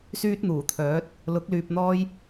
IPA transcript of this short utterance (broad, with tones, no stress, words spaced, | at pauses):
syː˥t̚n̪uː˨˩t̪ʰœː˨˥t̚ | lʊ˨˥k̚ lyː˧p̚n̪ɔː˥j